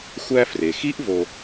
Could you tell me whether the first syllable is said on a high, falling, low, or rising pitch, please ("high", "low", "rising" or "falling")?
high